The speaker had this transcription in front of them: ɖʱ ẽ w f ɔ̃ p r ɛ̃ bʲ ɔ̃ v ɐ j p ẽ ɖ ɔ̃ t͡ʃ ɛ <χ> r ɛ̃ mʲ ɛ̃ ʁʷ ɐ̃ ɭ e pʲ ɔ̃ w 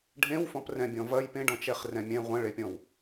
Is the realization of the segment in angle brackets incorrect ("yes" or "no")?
no